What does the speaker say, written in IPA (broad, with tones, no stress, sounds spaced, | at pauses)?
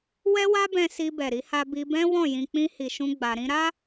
w ɛ˦ w a˦ b ɛ̃˧ s i˧ b ɛ˨ ɾ i˨˦ h a˧ b i˧ b ɛ̃˦ w ɔ̃˦˨ j ĩ˧ k͡p ĩ˦ h i˧ ʃ ũ˦ ɡ͡b a˧ ɾ ĩ˧ ɾ a˦